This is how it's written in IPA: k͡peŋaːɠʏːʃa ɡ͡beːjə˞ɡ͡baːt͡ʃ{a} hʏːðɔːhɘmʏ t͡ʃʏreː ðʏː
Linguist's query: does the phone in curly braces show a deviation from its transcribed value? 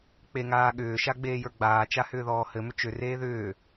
no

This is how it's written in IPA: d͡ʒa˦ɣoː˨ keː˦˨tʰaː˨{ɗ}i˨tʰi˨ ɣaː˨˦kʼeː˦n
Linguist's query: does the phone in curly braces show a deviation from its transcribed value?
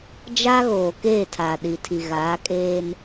no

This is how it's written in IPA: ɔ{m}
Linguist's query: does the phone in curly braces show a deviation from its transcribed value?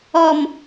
no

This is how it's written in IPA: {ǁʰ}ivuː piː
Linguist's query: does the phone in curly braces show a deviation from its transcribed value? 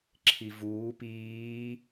no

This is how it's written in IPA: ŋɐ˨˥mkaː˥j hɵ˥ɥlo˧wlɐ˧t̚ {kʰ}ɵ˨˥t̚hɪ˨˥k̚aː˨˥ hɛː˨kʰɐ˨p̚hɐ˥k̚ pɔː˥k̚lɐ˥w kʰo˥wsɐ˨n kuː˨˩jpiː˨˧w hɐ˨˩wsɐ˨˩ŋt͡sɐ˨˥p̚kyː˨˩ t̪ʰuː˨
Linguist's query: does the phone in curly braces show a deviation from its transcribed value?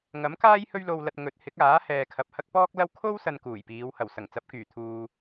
yes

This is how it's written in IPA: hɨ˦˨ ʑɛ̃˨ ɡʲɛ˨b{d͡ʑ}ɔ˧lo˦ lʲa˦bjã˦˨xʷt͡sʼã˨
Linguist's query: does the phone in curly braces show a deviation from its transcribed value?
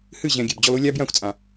no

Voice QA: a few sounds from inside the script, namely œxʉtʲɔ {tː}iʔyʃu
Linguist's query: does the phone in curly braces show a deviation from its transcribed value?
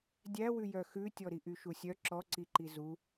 yes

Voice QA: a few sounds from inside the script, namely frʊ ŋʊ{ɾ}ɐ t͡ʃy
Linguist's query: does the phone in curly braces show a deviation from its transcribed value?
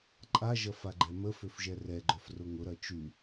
no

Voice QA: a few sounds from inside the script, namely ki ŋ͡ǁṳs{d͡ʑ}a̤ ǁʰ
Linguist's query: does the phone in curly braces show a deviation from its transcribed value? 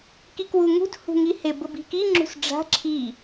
yes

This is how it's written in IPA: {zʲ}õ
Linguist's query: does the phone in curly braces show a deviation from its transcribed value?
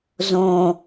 yes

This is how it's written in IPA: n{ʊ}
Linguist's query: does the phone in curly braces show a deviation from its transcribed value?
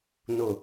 no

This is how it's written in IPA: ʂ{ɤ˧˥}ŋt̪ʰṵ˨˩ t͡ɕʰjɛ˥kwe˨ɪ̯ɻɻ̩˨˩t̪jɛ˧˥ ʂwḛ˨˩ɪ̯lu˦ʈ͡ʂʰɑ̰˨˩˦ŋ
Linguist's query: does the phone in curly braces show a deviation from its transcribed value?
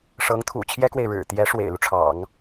no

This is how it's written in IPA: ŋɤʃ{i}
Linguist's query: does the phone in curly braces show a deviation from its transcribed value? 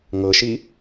no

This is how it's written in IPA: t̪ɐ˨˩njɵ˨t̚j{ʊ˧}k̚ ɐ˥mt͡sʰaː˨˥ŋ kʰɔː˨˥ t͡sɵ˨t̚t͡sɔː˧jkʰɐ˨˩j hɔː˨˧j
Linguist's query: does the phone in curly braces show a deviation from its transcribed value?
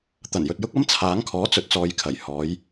yes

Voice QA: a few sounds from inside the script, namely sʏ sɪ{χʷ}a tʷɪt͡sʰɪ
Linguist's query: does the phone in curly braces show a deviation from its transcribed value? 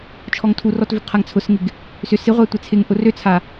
yes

